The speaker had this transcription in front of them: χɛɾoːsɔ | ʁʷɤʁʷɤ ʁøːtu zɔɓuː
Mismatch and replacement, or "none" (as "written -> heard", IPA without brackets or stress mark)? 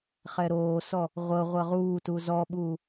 øː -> uː